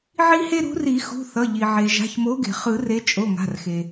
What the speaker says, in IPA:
ʕ i˥ h e˥ ɾ ṳ˨˦ r i˨˩˦ x ṳ˩˧˩ θ ʌ˩˧˩ ʎ i˩ ʕ e˩ ʒ a̤˩˧˩ ç m o˨˦ ɡ e̤˩ χ ɯ˨˩˦ r e˨˦ t͡ʃʼ o˩˧˩ ŋ a̤˩˧˩ r x e˩

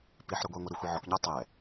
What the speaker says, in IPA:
p i ħ ɾ ə˞ ɡʷ ɛ ŋʷ ɛ ɾ u xʷ i ʕ ɔ k ɲ ɑ tˤ ɛ

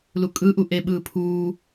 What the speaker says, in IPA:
l u kʼ ɯ ʔ u ʔ e ɓ ɯː pʰ uː

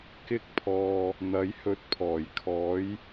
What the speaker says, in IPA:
k ɪ˧ k̚ pʰ ɔː˨ | n̪ ɐ˨˥ j h ɵ˨˥ t̚ pʰ ɔː˨˩ j kʰ ɔː˨˥ j

